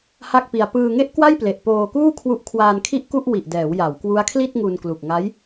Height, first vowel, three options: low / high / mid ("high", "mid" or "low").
low